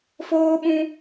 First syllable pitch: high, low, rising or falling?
high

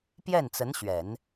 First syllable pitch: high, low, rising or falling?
falling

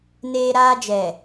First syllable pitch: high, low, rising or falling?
high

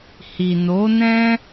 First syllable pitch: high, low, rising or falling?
low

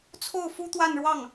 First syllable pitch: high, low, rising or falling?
falling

